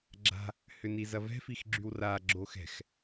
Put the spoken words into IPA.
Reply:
ɡ͡ǁ a̤ | h ʏ n i z ɐ v ɛ̤ f i x ɡ͡ǁ y w r a ɡ͡ǁ o x ɛ̤ x

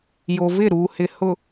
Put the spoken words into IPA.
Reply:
j o˨ v ɪ˦˨ ɾ uː˨ h ɪ˨ h ʊ˨

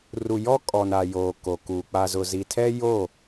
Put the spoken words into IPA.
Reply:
r u˨ j ɔ˦ kʼ ɔ˨ n a˨ j oː˨ k o˨ k u˨ k͡p a˨ z ʊ˨ z i˨ tʰ ɛ˦ j o˦˨

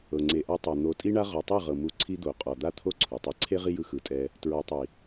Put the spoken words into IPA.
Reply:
ɤ˨ ŋ͡ǀ e˨ ʔ a˧ tˤ a˨ n̪ o˨˦ tʼ i˦ ɳ a˦ ʁ ɔ˨ tˤ ɯ˦˨ ʁ ɤ˨ m u˧ ǀʰ i˦ d̪ o˨ qʼ ɔ˨ d̪ a˦ t̪ʰ o˦ ǀʰ u˨ tˤ e˦ ǀʰ e˦ ʁ i˦ j ɯ˧ x ɯ˨ tʼ ɛ˧ | t ɹ ɔ˨ tˤ i˨

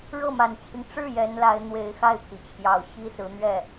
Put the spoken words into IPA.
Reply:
ɻ ɤ˥˩ m a˨˩ n t͡ɕʰ i˦ ŋ ʈ͡ʂ ɻ̩˥˩ j ɛ˧˥ n l a˧˥ ɪ̯ n̪ w e˧˥ ɪ̯ x a˥˩ ɪ̯ pʰ i˩ t͡ɕʰ j ɑ˨˩ ʊ̯ ɕ i˥ s ɹ̩˧˥ n̪ ɥ ɛ˥˩

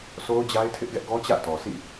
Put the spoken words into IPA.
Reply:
sʰ o˦ ʊ̯ d͡ʑ a˦ ɪ̯ tʰ ɪ˦ ʔ ɡ ɛ˦ ʔ ɡ ɔ˦ t͡ɕ ä̰˦˨ t ɔ˨ sʰ ḭ˦˨

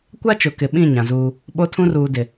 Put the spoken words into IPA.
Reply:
kʷ a˦ t͡ʃ ʊ˨ k ɪ˨ ɓ ĩ˦˨ ɲ ã˨ z uː˦ | ɓ o˦ tʰ ũ˦ r uː˨ d ɪ˨

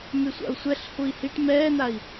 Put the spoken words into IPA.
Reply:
m y sʷ a̰ u̯ sʷ ɛ ɬ h u i̯ h i ʈ m ɛː n a i̯

